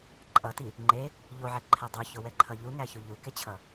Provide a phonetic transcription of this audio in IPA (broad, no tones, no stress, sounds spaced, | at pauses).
ǃʼ ʌ t i | ŋ͡ǃ e | ʎ o ʕ ɛ ǃʰ ɛ dˤ u ç o w ɛ ǃʰ ʌ ʎ u ŋ æ ç u ʎ u k e t͡ɕʰ ʌ